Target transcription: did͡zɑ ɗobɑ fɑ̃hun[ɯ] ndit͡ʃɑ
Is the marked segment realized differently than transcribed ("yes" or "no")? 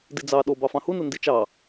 no